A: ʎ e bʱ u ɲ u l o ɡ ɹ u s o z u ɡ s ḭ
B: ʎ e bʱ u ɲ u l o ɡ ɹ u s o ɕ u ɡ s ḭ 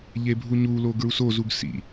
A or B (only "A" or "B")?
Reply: A